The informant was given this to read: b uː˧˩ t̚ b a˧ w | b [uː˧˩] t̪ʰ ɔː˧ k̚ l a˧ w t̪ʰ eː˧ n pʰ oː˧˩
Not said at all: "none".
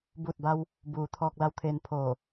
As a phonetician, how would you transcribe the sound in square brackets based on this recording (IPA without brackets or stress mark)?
uː˩˧